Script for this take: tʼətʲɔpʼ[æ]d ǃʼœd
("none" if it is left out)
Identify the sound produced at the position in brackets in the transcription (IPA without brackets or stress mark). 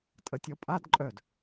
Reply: a